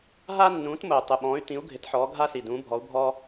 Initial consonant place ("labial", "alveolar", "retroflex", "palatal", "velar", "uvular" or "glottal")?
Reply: glottal